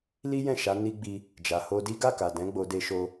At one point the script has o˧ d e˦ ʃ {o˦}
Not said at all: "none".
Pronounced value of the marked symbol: o˦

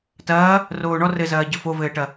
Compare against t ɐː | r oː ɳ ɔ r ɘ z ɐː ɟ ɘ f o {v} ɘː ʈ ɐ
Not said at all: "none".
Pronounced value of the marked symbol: v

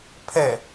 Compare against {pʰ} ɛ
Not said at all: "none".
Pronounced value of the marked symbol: pʰ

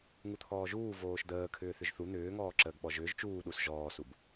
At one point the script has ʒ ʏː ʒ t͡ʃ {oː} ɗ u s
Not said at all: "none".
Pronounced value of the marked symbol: uː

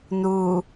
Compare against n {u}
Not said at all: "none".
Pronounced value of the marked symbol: u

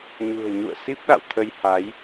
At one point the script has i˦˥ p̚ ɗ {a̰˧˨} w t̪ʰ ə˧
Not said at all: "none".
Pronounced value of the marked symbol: a̰˧˨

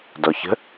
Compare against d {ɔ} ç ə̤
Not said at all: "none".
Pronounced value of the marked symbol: ɔ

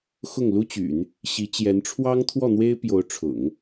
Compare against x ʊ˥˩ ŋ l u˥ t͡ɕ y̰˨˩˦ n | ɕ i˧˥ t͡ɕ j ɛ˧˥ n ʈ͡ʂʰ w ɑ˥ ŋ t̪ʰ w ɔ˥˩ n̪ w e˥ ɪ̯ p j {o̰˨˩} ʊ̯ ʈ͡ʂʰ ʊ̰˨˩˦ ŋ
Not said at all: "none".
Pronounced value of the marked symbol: o˧˥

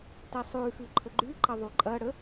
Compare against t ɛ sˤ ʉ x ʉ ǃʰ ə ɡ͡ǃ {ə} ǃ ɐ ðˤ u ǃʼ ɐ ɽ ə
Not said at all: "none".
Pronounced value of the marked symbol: ʉ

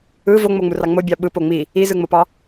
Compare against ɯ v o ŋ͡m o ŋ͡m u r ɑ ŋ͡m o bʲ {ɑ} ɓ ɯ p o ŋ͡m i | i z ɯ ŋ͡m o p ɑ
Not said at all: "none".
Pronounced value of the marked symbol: ɑ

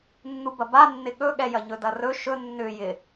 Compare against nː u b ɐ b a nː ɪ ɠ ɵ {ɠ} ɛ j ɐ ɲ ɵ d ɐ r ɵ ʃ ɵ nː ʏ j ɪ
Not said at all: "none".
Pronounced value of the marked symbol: ɠ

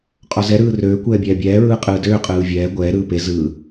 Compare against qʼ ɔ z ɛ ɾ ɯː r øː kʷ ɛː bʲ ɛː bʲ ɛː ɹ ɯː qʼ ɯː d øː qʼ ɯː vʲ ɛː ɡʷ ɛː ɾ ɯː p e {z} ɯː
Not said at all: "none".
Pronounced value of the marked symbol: z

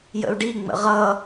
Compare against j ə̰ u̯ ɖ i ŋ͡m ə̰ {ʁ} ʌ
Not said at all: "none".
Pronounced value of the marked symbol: ʁ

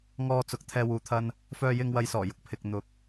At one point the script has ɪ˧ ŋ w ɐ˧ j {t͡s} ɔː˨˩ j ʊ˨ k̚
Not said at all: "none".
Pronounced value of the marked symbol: s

